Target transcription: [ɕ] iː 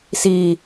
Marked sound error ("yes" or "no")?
yes